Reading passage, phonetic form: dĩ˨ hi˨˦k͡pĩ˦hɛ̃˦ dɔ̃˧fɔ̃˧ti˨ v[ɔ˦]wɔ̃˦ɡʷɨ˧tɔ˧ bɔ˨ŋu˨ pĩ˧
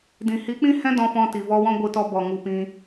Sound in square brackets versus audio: incorrect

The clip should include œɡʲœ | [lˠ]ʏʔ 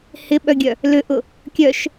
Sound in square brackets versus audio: incorrect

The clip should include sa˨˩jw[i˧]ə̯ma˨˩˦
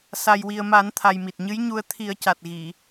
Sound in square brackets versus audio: incorrect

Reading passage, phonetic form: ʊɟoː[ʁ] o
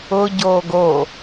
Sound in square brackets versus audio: incorrect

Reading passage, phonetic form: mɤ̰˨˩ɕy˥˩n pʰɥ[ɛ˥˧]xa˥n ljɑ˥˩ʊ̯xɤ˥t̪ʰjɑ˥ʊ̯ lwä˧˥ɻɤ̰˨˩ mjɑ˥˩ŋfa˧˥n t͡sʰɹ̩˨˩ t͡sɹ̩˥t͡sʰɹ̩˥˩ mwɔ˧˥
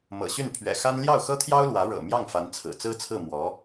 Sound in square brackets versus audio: incorrect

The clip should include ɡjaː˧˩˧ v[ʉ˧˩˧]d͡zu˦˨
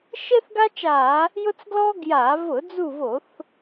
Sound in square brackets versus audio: incorrect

